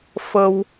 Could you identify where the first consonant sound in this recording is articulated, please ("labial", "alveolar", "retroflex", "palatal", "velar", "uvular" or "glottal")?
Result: labial